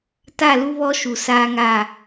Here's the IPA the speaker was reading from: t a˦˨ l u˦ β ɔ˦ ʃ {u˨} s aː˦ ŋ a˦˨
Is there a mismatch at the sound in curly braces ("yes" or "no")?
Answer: no